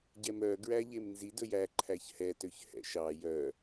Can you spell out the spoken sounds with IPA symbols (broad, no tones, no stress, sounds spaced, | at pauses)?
ɟ ɛ m œ ɡ ɹ æ ʎ e m n z i d ɵ j æ ǃʰ æ ç h ɛ t ø ç h ɛ̰ ʃ ɑ j œ